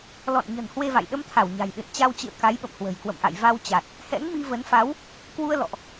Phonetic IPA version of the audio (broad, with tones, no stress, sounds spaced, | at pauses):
l ɔ̰˧˨ n ɲ ə̤˨˩ n h w e˧ v a̰˧˨ j ɗ ə˧ m t̪ʰ a˧˩ w ɲ a̤˨˩ j ɗ ɨ̰˧˨ n t͡ɕ a˧ w t͡ɕ ɨ̰˧˨ ə̯ k a˨˦ j ɓ ə̰˧˨ m h w ə̤˨˩ j k w ə̰˧˨ m ʔ a̰˧˨ j v a˧ w t͡ɕ a˨˩ t̚ | h ɛ̰˧˥ ŋ m i˧ v ə˨˦ n f a˨˦ w | k w u˧ ə̯ l ɔ̰˧˨ ʔ